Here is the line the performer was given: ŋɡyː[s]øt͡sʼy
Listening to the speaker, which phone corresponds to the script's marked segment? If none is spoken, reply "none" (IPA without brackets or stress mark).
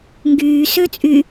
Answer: s